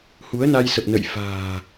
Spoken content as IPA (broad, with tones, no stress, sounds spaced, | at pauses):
h u˨˦ ə̯ n a˧ j s ə˨˩ p̚ n ə̰˧˨ j f a̤ː˨˩